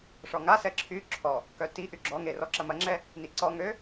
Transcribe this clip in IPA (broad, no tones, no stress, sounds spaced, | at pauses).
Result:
ʂ ɔ ŋ a s ɛ ǁʰ y ǁʰ ɔ | k œ t i ʔ y ɡ͡ǁ ɔ ŋ e r ɔ ǁ ɐ m ɐ ŋ͡ǁ ɛ | n i ǀ ɔ ŋ ø